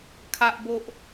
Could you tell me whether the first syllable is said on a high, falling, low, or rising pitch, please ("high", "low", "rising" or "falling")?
high